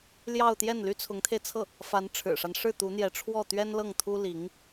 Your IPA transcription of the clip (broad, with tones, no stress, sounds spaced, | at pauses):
l j ɑ˥˧ ʊ̯ t̪ j ɛ˥˩ n l y˥ t͡sʰ ʊ˧˥ ŋ t̪ʰ e˧ ɪ̯ t͡sʰ ɤ˥˩ | f a˧˥ n ʈ͡ʂʰ ɻ̩˨˩ ʂ a˦ n ʂ ɻ̩˥˩ t̪ u˧˥ n̪ j ɛ˧˥ ʈ͡ʂʰ w ɔ˥˩ t̪ ɥ ɛ˥ n l ɤ˥˩ ŋ t̪ʰ u˥ l i˧˥ ŋ